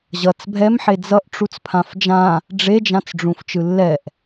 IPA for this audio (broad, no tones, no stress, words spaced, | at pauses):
ʑʌt͡s bʱɛmħe d͡zʌʔ ʈ͡ʂut͡spʰãfd͡ʒã | ɖ͡ʐed͡ʒãt͡sɖ͡ʐũf t͡ʃɯlːɛʔ